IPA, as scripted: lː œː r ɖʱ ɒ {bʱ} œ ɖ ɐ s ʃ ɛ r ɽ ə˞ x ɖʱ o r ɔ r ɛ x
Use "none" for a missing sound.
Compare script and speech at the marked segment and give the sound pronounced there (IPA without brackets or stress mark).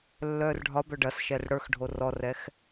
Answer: b